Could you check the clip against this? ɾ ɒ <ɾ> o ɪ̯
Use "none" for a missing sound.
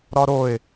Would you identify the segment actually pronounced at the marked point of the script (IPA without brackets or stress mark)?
ɾ